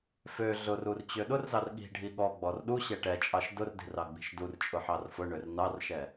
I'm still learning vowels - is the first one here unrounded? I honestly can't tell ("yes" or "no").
no